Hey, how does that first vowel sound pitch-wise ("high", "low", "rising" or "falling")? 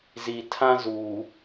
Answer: low